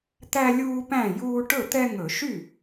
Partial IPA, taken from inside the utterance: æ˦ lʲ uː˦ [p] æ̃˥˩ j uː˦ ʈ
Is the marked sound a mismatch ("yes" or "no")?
no